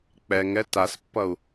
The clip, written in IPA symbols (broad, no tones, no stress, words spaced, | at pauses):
k͡pɛŋɛ taspːʌu̯